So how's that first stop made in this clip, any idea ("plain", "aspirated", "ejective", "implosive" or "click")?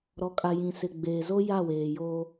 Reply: ejective